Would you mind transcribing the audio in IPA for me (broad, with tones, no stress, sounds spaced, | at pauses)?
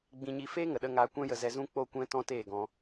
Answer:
ɡ͡b ĩ˧ ɲ i˧ f eː˦ ŋ ə˨ ɗ ə˧ ŋ aː˧ kʷ ɛ̃˦ j ə˧ z ɛ˧ z ũ˦ k͡p o˦ kʷ ɛ̃˦ t ɔ̃˦ t eː˦˨ ɡ ɔ̃˧